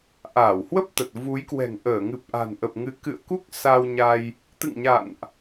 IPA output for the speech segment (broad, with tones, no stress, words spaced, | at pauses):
ʔaː˧˩whwə˦˥p̚ t̪ə˨˩t̚ vu˨˦jkwɛ̤˨˩ŋ ʔəː˧˩ ŋɨ˨˩p̚ʔa̤˨˩nʔə˨˩p̚ ŋɨ˨˦kɨ̰˧˨ə̯ku˦˥k̚ sa˧wɲa˧j | t̪ɨ̰˧˨ŋɲa̰˧˨nʔ